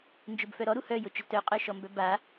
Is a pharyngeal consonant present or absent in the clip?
absent